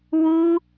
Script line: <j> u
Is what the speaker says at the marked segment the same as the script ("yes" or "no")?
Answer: no